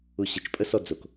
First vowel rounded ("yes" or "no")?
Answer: yes